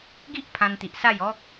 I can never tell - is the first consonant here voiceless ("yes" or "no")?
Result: no